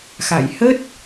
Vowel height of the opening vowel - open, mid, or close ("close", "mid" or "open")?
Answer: open